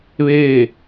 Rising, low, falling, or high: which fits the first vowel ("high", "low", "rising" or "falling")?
falling